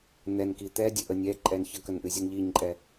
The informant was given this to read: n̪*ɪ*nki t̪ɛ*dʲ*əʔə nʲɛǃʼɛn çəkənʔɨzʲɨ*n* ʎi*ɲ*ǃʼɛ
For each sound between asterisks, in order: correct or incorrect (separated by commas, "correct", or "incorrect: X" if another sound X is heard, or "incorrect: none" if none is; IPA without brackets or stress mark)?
incorrect: ɛ, correct, correct, correct